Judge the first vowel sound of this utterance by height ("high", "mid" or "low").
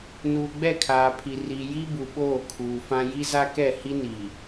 high